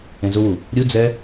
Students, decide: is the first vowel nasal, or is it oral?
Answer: nasal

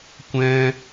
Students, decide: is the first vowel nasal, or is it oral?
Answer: nasal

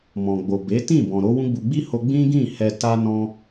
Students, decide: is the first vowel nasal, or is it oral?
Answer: nasal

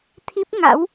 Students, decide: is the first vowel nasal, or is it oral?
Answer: oral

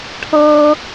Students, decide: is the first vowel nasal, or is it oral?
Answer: oral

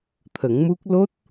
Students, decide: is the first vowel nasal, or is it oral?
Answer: oral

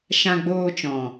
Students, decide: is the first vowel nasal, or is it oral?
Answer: nasal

